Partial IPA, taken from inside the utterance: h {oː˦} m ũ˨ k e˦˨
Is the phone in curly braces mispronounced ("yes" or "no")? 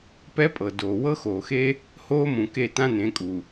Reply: no